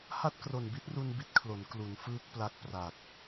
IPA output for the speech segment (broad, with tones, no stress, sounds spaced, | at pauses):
h a˥˩ t̚ k r o˨˩ n b i˦˥ t̚ r u˧ n b i˦˥ t̚ kʰ l o˩˦ n k l u˩˦ n f ɯː˦˥ k̚ p l a˦˥ k̚ p r a˨˩ k̚